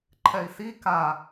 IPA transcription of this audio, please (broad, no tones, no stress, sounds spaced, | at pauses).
ǃʰ ɛ i̯ s i k a